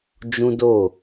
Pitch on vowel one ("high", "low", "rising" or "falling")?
high